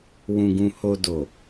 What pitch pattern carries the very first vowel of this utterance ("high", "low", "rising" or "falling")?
low